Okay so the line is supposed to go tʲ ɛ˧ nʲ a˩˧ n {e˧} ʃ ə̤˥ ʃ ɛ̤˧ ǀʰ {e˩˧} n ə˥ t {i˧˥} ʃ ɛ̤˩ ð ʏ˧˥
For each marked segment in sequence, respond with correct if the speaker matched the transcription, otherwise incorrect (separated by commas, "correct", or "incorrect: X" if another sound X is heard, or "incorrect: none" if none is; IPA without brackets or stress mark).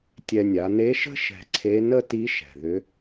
incorrect: e˧˥, incorrect: e˧˥, correct